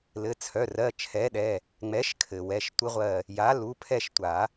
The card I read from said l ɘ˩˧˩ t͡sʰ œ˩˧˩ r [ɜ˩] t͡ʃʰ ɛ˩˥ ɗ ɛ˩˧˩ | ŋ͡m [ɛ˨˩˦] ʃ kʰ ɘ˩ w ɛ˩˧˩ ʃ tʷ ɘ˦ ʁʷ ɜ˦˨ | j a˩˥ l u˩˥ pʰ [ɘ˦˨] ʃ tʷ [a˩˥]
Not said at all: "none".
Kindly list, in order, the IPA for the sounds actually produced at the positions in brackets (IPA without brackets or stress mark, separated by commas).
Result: ɜ˩˧˩, ɛ˩˥, ɛ˦˨, a˨˩˦